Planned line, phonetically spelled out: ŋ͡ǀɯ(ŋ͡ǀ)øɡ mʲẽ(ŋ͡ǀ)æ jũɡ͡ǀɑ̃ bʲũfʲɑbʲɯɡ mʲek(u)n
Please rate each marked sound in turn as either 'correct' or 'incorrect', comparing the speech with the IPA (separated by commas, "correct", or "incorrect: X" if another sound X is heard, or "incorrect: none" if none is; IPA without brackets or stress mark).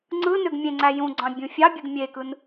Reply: incorrect: n, correct, incorrect: ɯ